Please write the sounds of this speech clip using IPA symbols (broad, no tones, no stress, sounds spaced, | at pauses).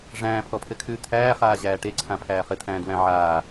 ʐ æ̃ː pʰ ɔ pʰ ɘ kʰ ʉː t̪ʰ æː χ aː ʑ æː ʈ e ǀʰ ã pʰ æː χ ɘ t̪ʰ æ̃ː d w æ̃ ʕ aː